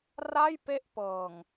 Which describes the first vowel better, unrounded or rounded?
unrounded